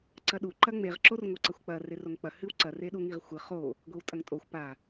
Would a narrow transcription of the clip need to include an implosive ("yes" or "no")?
yes